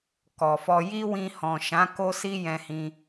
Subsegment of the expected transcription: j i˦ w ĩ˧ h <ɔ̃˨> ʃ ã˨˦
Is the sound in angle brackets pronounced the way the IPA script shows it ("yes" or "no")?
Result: yes